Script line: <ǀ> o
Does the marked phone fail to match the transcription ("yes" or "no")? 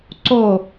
no